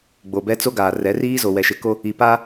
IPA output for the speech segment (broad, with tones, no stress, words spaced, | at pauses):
ɡ͡bo˨bɛ˦ t͡so˦ ɡaː˨rɛ˨˦riː˦ zo˨wɛ˨ʃɪ˨˦ko˦ | i˨pa˦